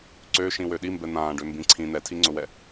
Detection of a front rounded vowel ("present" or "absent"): present